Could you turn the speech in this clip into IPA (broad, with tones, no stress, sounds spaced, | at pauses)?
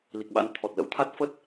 l i˨˩ k̚ ɓ a̰˧˥ n t̪ʰ ɔ˨˩ t̚ l ə̰˧˥ w t̪ʰ a˦˥ t̚ f ə˦˥ t̚